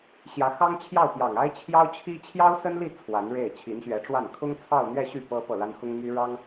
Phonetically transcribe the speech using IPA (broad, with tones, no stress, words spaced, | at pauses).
ɕjä˧˥xɑ˥ŋ t͡ɕʰjɑ˥˩ʊ̯pjɑ˨˩ŋ a˥ɪ̯t͡ɕʰjɑ˥ʊ̯t͡ɕʰi˥ t͡ɕʰjɑ˥ʊ̯sə˥nli˥˩ t͡sʰwa˧˥nɻe˥˩ɪ̯ t͡ɕʰi˧˥nɕɥɛ˧˥ʈ͡ʂwa˥˩n kʰʊ˥ŋt͡sʰɑ˥˧ʊ̯n̪ɥɛ˥˧ɕy˥˩ pɤ˥pɤ˥˩la˥n xʊ˥ŋmy˥ ɻɑ˥ŋ